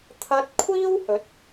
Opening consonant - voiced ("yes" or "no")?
no